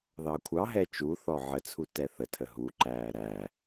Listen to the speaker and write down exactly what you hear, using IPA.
ð ɑ kʷʰ ɑ ɦ ɛ t͡ʃ u θ ɔ ʕ ə t͡sʰ u t ɛ θ ə tʰ ə ɦ u ǃ æː ɾ æ

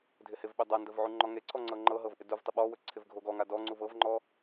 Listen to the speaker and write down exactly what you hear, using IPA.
dʱ ɪ h ɪ v ɓ ɵ dˤ a n d ə v ʕ u ŋ͡ǃ ɔ ŋ e ǀʰ ɔ ŋ͡ǀ ɤ ŋ͡ǃ ɤ ɦ ɤ v ʔ ɪ d u v tˤ ɪ ɓ ɔ w ɵ ǀʰ ɪ v ɡʱ o ɡ ɔ ŋ a d ɔ ŋ͡ǀ u v ɤ v ŋ͡ǃ ɔ

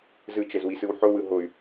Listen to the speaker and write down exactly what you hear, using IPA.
z ɯ t͡ʃ ɛ z w i s ɯ w ħ o w ɯ ɦ o y̯

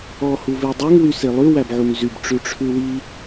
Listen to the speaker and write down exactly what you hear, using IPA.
ɔ h u v e dˤ ø ŋ w y s e lˠ ʉ w æ b ʕ u ŋ z y b ʈ͡ʂ ʉ ʈ͡ʂʰ ʉ w i

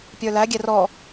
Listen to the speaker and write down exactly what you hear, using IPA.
pʲ ə˞ l æ ɡʲ ɛ r ɔ

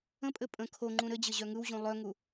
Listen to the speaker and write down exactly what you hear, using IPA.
ə̃ pʼ ɘ pʼ ə̃ kʰ o ŋ͡ǃ ũ ɾ ɘ d͡ʑ ɘ ʑ œ ŋ ɯ w ʑ ũ lˠ œ ŋ u

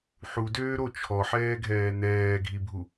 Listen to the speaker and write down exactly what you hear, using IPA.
ħ u d øː ɾ o t͡ʃʰ ɔ ħ ɛː ɡʱ ɛː n ɛː ɡʱ i bʱ u

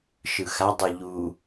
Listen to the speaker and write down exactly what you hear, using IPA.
ʃ ɯ x a dˤ ɯ ʎ u

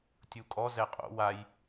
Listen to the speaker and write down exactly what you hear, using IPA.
tʲ u kʼ ɔ z ɛ qʼ o̰ w a j

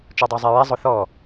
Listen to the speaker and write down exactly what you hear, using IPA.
t͡ʃ ɔ dˤ o zˤ ɛ ɹ ɛ zˤ ʊ θ ɔ

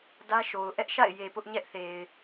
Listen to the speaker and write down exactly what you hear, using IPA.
d ä˦ ʃ o˨ ʊ̯ ʔ ɛ˦ ʔ ʃ a̰˦˨ ɪ̯ j e˨ p ʊ˦ ʔ ɲ ɛ˦ ʔ θ e˨ ɪ̯

